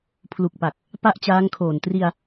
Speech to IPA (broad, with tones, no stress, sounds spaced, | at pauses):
pʰ l u˨˩ k̚ p a˨˩ k̚ | p a˥˩ ʔ t͡ɕ aː˦˥ ŋ kʰ oː˨˩ n t r i˧ a̯